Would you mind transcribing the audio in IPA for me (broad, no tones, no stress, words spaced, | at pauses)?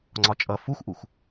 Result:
ŋ͡ǀɒt͡ʃʼʌ fuxʔux